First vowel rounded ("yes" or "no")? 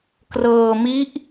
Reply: no